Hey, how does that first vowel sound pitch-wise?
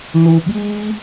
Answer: low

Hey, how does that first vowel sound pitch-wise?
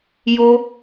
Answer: high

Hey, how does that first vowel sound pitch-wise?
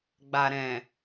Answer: low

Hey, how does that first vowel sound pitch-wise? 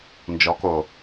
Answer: rising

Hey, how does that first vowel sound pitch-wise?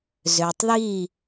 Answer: low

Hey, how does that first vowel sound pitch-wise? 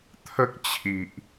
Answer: high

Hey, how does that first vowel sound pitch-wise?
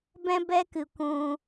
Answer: high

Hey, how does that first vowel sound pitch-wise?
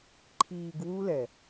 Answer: low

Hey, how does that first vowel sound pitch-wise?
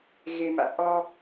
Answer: low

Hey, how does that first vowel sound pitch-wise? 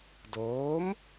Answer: rising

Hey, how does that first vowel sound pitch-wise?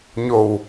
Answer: low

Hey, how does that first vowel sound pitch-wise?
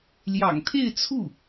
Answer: low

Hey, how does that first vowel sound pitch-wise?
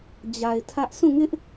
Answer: low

